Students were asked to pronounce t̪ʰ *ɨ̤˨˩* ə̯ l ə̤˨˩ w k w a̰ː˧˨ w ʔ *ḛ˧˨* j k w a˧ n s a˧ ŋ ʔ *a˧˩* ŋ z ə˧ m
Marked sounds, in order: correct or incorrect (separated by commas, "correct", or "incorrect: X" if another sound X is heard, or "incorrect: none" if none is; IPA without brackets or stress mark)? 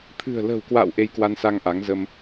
correct, incorrect: e˧, incorrect: a˨˦